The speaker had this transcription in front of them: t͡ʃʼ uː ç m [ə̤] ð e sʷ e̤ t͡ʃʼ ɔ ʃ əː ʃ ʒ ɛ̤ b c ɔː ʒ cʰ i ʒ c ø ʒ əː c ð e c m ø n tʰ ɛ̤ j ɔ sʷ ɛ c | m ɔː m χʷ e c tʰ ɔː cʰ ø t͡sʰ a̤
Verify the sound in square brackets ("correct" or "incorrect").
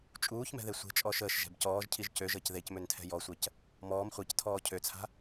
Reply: incorrect